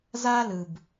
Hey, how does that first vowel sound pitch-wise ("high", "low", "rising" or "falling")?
high